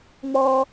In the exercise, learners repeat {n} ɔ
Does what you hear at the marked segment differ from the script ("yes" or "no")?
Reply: yes